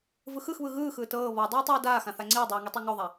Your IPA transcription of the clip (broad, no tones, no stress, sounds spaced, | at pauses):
v ɯ x ɯ x β ɯ ɣ ɯː x ɯː t ɤː β ɔ dˤ uː tˤ oː d aː x ã θ a ŋ͡ǀ iː dˤ iː ŋ i tˤ e ŋ o ðˤ a